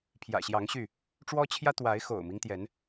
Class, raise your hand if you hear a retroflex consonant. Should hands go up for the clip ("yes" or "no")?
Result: yes